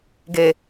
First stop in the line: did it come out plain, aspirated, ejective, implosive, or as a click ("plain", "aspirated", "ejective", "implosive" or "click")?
plain